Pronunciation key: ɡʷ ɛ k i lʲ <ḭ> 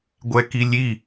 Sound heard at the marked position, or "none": i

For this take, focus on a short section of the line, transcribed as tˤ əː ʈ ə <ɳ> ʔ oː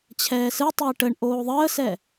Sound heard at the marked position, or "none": ɳ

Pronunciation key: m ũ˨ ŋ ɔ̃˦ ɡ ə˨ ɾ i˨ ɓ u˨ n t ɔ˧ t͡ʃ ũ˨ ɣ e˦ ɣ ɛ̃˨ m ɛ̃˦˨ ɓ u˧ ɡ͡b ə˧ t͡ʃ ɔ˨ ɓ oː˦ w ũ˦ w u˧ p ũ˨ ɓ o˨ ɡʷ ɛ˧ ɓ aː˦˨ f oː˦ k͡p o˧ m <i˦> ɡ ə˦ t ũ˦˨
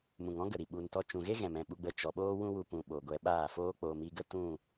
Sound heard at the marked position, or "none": i˧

